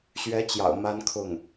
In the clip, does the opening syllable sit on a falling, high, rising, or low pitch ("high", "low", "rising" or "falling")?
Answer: rising